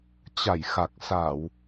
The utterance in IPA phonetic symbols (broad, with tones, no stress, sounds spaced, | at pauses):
t͡ɕ a˧˩ j x a˨˩ k̚ s a˧˩˨ w